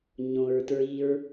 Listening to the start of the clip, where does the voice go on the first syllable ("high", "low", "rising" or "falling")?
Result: low